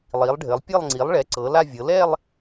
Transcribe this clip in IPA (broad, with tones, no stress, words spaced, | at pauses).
lˠi˩˧lˠɖʱɘ˩˧lˠ pʲɘ˥˧lˠ ŋ͡ǀi˩˧lˠɭɛ˩˧ ǀɤ˩˧la˥˧vʲɤ˩˧ lɛ˥˧lˠ